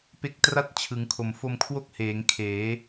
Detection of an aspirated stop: present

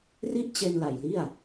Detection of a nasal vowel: absent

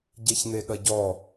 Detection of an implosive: present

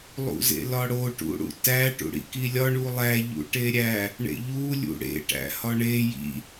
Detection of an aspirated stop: absent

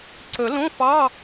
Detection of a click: present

